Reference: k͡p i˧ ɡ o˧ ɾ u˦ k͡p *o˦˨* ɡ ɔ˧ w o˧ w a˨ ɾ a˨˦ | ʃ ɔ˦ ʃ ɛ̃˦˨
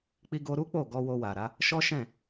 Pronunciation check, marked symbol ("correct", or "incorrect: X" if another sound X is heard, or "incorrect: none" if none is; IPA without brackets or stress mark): correct